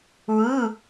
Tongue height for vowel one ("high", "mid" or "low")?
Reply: high